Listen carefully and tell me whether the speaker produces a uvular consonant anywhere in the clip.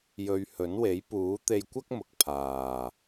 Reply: no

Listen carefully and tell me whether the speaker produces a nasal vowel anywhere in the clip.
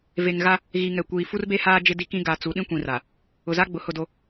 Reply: yes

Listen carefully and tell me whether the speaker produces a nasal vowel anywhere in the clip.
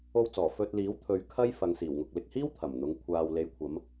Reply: no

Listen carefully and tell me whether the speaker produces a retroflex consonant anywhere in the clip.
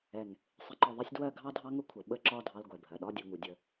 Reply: no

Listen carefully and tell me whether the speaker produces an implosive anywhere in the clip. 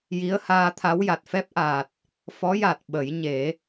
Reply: yes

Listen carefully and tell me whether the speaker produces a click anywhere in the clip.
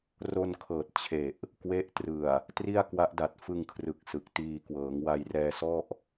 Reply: no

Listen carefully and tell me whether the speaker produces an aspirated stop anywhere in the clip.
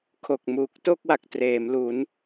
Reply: yes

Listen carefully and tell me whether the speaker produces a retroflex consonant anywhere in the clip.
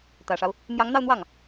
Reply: yes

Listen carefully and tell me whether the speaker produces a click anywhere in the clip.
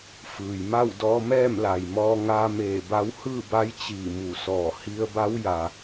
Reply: no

